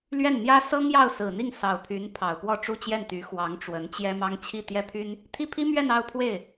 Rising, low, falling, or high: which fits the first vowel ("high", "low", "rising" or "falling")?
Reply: falling